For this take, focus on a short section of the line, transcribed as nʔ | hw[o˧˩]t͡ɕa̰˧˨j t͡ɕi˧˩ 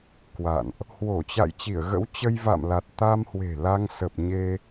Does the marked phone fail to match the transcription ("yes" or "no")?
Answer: no